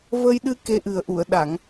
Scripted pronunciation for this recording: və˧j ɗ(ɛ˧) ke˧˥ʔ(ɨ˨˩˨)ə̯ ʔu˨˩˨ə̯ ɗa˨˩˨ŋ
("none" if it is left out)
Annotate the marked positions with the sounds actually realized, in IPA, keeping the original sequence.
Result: ɨ˧, ɨ˨˩

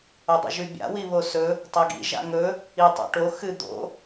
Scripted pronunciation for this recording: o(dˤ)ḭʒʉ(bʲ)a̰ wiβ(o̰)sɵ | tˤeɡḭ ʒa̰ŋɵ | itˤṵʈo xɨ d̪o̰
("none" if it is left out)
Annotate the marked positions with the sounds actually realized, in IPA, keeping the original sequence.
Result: dˤ, bʲ, o

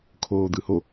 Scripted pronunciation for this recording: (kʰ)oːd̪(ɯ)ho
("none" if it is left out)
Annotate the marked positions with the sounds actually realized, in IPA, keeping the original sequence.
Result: kʰ, ɯ

